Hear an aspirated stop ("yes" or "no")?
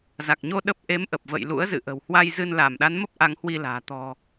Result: no